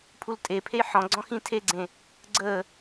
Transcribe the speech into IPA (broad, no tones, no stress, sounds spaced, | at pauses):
pʰ u l tʼ e pʰ e j ħ ɔ̃ ɡ͡ǀ ɔ̃ x ĩ tʰ e ɡ͡ǀ ẽ | ɡ͡ǀ əː